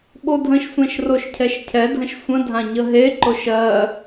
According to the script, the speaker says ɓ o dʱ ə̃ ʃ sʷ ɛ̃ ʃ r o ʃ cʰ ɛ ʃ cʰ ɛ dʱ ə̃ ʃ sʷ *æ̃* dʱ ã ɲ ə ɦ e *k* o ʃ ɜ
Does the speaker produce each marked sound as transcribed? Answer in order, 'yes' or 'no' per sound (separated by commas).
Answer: no, no